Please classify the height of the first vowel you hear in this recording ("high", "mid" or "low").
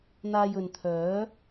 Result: low